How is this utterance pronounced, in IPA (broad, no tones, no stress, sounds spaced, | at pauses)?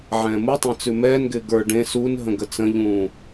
ʕ ɛ̃ː m u tˤ ɛ̃ t͡s ʉ m ɛː n ɡ ɪː ɡ ə˞ ɖ ẽ s u n ɦ ə̃ ɡ ə t͡s ə̃ ʎ ũː